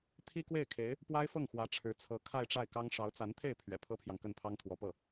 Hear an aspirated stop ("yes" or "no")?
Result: yes